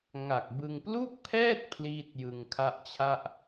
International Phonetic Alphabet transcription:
ŋa˨˩k̚bɯ˧ŋ plu˥˩k̚pʰɛː˥˩t̚ pʰliː˥˩t̚jɯ˧ŋkʰa˥˩ʔt͡ɕʰa˥˩ʔ

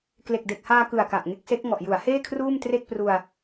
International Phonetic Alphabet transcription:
kle˨˩k̚de˨˩k̚haː˧kɯ˨˩a̯ ka˨˩ʔŋe˦˥k̚se˦˥k̚ ŋɔ˨˩ʔju˩˦a̯heː˥˩ kʰruː˥˩mtre˥˩k̚pru˧a̯

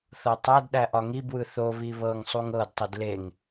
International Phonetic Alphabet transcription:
θɤtˤædɗæ ʔɒŋibwɯ θoβi βɤŋ sˤuŋɤdtˤid leŋ

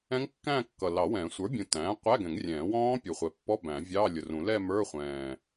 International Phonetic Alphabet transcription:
ɛ̃˦˥ŋkːæ̃ː˥˧ kːʌ˨˩lɑ˨˩˦wɛ̃ː˨˩˦ sʷə˞˩˥bʲũ˨˩ tæ̃ː˩˥qʷæ˧˥˧ɡɛ̃˨˩˦ŋrʲɛ̃ː˨˩˦ wɔ̃ː˦˥pʲu˨˩χʷɛ˨˩pːɔ˧˥˧ bæ̃˨˩˦vʲɑː˧˥˧lʲʊ˨˩rũ˨˩˦ lɛ˥˧mə˞˧˥˧χʷɛ̃ː˨˩

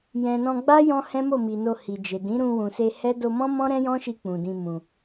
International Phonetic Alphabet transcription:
jɛ̃˨nɔ̃˧ɡ͡ba˦ jɔ̃˦hɛ̃˦ mo˦˨mi˨no˧ hi˨d͡ʒe˨ dĩ˨˦ɾũ˧wũ˨se˧ hɛ˦ do˧mɔ̃˦mɔ̃˦ ɾɛ̃˦jɔ̃˦ʃi˧ k͡pũ˨dĩ˧mũ˨

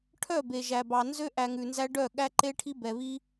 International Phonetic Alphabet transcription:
ʈʰœ˦˨ be˨ʒæ˨bɑ˨ nzø˦ ʔæ˧ŋʉ˨nzæ˦ ɖœ˦˨ɠæ˦ǃe˦ʈʰi˦ bɛ˨βi˦

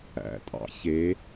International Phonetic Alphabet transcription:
æ̰ tʼɑ̰çe

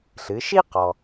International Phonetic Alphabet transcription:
ɬɨ˩˧ʃi˥ qɔ˩

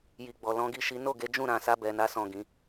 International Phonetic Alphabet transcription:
ji˨ɡ͡bɔ˨ lɔ̃˨˦ɡi˦˨ʃi˨˦ no˦˨ɡe˨˦ d͡ʒũ˦˨ɾã˨ sa˧bɛ˨na˨˦ sɔ̃˦˨ɡĩ˨˦

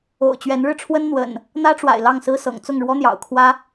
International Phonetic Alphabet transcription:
o̰˨˩ʊ̯t͡ɕɥɛ˨˦nɻɻ̩˧ʈ͡ʂʰwə˦n n̪wə̰˨˩n | n̪ä˦ʈ͡ʂwa̰˨˩ɪ̯ lɑ˥˨ŋsɹ̩˦sɤ̰˨˩ŋ t͡sʊ˥˨ŋɻwɔ˦n̪jɑ̰˨˩ʊ̯kʰwä˦

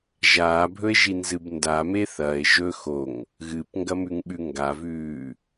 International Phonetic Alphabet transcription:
ʒaːbʱɵe̯ʒinzɨb ndame θɐe̯ ʒɵ xoŋ | ɣɨpŋɡɐmʉŋɓʉ ŋɡavʉː

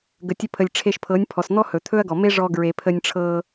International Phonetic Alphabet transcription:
ɡə˨tʲɵ˧pʰə˨lʲ ʈ͡ʂʰe˧ʃpʰɤ˨˦nʲ pʰɔ˨sn̪ɔ˦ hɵ˨t̪ʰɵ˦ɐ̯ɡɔ˨me˦ ʐɔ˧ ɡɹe˨pʰə˧nʲʈ͡ʂʰɤ˧

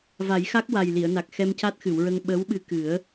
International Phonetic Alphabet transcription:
va˨˩˦jxa˦˥k̚ wa˨˩jli˨˩˨ə̯na˨˩k̚ xɛ˧mca˦˥t̚xɨ˨˩˨wɹə˧ŋ ɓə˧˥wɓɨ˧ kɨ˨˩˦ə̯

